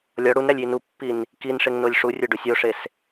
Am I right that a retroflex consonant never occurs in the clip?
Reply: no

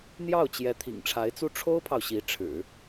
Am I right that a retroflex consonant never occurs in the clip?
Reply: no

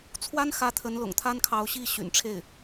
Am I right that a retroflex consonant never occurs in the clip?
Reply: no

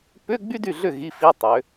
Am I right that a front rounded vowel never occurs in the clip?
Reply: no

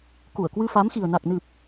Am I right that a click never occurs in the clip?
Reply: yes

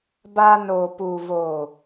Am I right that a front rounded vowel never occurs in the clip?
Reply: yes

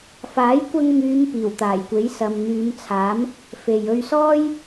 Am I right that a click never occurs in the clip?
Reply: yes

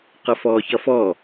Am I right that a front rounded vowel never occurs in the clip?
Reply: yes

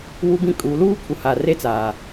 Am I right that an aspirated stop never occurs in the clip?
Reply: no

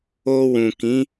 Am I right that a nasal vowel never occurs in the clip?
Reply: no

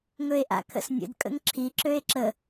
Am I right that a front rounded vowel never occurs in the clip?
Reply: no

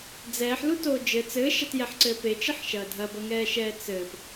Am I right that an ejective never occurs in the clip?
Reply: yes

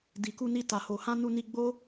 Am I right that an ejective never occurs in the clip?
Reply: yes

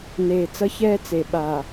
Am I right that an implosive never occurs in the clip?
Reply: no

